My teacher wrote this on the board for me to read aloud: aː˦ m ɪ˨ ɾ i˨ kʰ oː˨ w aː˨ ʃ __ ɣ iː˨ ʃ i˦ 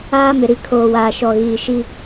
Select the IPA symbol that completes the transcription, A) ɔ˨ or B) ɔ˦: A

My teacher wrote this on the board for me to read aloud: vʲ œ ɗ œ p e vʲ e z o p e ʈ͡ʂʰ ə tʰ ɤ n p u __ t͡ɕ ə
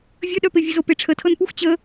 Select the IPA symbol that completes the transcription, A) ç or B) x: B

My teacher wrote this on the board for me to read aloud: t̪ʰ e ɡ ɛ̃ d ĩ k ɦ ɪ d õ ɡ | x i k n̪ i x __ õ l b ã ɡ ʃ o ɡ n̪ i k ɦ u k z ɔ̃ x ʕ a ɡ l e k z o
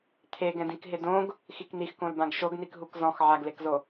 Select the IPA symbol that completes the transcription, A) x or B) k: B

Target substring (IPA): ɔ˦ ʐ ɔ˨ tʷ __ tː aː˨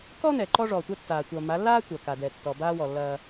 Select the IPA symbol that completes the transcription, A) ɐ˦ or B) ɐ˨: A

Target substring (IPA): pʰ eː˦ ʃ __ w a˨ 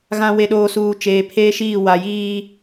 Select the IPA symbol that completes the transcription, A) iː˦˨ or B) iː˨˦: A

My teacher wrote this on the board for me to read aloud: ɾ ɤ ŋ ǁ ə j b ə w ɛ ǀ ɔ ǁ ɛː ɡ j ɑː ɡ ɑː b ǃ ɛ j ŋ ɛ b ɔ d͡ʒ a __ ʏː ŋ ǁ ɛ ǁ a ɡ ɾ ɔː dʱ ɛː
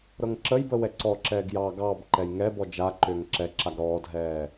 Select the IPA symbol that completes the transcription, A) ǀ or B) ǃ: B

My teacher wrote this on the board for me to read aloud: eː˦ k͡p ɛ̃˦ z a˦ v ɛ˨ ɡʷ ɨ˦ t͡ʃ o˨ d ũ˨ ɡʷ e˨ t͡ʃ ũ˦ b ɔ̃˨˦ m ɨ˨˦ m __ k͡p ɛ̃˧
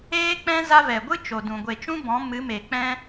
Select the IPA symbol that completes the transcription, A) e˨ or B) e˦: A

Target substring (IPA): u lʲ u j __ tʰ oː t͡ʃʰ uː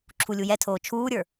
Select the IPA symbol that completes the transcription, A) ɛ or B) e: A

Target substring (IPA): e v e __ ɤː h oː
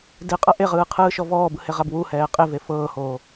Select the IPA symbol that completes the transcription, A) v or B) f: B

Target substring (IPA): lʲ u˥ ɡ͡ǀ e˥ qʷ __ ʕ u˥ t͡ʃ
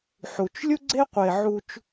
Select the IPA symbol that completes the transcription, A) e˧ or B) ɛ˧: A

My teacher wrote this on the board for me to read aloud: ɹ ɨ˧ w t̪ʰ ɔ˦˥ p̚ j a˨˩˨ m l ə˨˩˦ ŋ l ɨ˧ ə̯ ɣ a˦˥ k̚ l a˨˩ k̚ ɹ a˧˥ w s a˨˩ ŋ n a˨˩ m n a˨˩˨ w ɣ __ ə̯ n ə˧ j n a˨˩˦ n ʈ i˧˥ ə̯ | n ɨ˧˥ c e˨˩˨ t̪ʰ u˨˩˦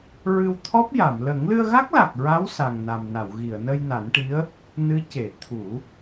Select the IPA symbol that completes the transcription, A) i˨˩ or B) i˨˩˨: B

